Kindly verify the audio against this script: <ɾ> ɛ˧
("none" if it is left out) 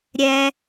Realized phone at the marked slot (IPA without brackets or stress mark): ɾʲ